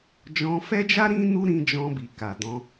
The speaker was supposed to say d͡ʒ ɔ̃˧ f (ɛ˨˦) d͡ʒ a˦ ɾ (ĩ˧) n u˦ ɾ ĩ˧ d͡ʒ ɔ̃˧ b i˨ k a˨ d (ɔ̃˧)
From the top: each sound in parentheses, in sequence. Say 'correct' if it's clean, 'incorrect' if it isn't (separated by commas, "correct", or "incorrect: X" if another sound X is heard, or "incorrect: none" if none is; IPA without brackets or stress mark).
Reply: incorrect: ɛ˦, incorrect: ĩ˦, correct